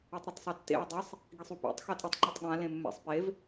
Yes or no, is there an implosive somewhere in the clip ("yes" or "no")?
yes